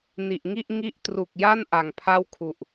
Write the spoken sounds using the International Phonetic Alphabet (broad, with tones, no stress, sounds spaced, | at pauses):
n i˨˩ ʔ ŋ i˥˩ ʔ ŋ i˦˥ ʔ t r u˨˩ k̚ j a˥˩ n ʔ a˨˩ ŋ pʰ a˥˩ w kʰ u˨˩ ʔ